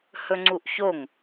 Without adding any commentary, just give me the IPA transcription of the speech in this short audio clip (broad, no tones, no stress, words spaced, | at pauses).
hɵŋ͡ǀuʔçoŋ